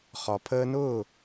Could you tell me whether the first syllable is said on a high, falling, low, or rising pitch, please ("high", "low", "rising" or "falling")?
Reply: low